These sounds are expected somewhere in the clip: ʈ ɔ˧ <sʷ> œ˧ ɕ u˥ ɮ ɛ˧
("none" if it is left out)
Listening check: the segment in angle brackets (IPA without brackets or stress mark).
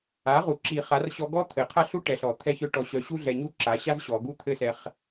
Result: ɕ